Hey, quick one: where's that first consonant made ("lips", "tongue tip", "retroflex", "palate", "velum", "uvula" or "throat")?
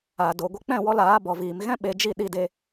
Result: tongue tip